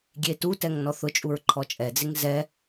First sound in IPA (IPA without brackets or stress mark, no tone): ɡʲ